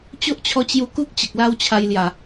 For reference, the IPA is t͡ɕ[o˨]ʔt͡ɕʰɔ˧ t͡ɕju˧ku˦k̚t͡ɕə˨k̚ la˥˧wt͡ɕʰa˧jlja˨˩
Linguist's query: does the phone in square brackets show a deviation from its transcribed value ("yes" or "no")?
yes